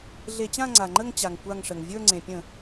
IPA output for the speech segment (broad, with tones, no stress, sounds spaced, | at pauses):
ɮ e˧˩˧ t͡ɕ ã˥˧ ŋ͡ǀ a˩ ŋ͡ǃ ə˥˧ ŋ t͡ɕ a˩ ŋ kʷ a˧˩ ŋ ʂ ə˩ ŋ vʲ ə˞˥˧ ŋ͡ǀ ẽ˩ pʲ ə̃˧˩˧